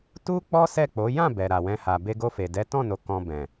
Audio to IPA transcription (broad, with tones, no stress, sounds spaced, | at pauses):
t u˦ k͡p ɔ˦ s ɛ˦˨ k͡p o˨˦ j ã˦˨ b ɛ˨ ɾ a˨ w ɛ̃˧ h a˨ b e˧ ɡ o˧ f e˨ d ɛ˨˦ t ɔ̃˦˨ n o˨ k ɔ̃˧ b ɛ̃˨